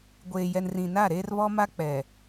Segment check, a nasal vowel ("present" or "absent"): present